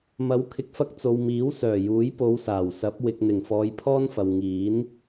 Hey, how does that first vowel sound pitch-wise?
rising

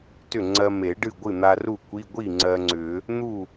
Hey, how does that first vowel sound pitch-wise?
falling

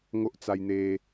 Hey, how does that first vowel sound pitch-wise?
high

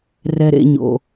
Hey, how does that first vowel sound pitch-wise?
low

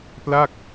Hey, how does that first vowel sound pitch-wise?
falling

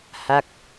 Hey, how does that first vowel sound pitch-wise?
falling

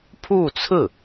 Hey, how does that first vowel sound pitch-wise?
falling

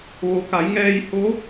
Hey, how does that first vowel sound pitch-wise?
low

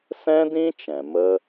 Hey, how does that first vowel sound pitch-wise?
high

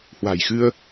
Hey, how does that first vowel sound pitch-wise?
low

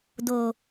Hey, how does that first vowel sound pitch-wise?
low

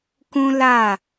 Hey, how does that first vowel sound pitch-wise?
high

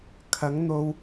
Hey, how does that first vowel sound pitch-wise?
rising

